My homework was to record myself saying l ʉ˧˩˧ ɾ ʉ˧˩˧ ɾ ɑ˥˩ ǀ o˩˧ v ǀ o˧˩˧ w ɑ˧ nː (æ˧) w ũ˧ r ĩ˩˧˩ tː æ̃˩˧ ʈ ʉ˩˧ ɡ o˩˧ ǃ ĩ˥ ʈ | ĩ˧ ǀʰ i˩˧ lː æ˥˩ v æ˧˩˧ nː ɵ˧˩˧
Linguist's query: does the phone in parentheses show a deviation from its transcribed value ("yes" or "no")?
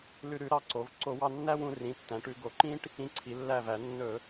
yes